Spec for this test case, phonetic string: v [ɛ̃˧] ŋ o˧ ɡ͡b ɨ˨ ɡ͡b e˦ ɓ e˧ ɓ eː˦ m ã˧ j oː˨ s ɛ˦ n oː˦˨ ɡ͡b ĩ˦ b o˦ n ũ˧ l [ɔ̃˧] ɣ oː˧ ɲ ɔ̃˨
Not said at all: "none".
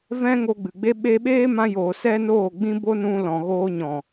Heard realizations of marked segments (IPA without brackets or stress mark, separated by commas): ɛ̃˦, ɔ̃˨